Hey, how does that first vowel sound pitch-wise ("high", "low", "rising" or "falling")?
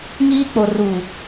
high